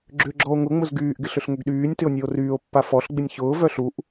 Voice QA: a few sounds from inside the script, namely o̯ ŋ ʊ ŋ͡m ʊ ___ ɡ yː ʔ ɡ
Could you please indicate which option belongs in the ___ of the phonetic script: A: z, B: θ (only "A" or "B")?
A